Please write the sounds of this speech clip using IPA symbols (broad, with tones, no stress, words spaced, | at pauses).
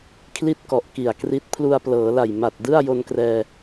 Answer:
kʰli˥˩t̚kɔ˨˩ʔ ki˨˩a̯kri˦˥t̚ pʰlu˧a̯plɤː˩˦la˨˩j ma˨˩t̚dɯ˥˩a̯ jo˧nkrɛː˧